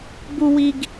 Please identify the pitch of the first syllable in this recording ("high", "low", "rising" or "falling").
high